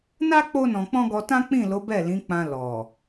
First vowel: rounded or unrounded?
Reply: unrounded